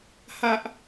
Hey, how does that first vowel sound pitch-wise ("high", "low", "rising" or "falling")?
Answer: high